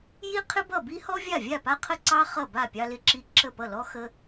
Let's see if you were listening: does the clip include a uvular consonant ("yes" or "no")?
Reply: yes